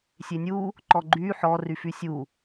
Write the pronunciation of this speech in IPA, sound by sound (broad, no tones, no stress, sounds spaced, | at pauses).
sʲ e nʲ u | ǃ ɔ ɡ͡ǃ y ħ ɔ r y f y sʲ u